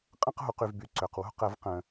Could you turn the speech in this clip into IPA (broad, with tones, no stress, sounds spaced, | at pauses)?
qʼ ə̃˦˨ q ɦ u˩ q y˩ v b y˩ ǀ ø˩ q w ṳ˦˨ q ə˨˩˦ v q ə̃˩